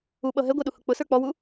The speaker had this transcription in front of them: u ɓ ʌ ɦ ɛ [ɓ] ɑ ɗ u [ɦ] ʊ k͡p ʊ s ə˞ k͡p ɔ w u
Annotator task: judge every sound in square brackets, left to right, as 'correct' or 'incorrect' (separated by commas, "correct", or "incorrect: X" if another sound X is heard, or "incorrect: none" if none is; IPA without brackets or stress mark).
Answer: incorrect: ɡʷ, incorrect: h